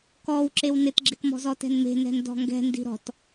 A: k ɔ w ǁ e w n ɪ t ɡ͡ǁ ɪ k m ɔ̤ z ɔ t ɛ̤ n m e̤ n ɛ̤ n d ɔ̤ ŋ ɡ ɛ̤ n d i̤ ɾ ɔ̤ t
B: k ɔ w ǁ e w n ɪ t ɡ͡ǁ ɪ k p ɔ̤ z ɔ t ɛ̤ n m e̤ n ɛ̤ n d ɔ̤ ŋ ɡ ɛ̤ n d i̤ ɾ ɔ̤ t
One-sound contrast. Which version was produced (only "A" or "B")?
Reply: A